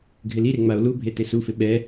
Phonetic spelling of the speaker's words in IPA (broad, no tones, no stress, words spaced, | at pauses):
ɡʱɪliɾe ŋ͡mao̯lubʱe tesufɪ ɓɛ